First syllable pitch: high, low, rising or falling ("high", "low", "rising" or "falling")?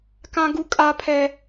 high